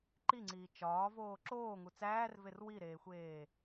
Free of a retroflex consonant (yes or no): yes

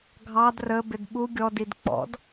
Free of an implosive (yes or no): no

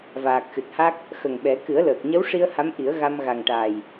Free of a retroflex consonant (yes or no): no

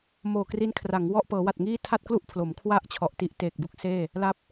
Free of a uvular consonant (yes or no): yes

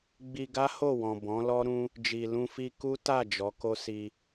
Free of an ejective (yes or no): yes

